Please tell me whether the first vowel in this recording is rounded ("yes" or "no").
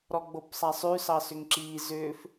yes